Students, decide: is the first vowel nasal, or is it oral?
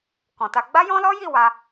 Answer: nasal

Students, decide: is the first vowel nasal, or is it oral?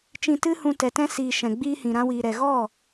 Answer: nasal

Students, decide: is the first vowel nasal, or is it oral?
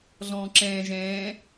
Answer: nasal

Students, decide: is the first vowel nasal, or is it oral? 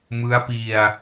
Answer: oral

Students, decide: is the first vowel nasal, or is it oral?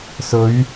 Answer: oral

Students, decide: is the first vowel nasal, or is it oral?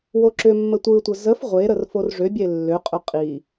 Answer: oral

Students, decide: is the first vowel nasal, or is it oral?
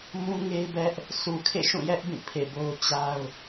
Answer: nasal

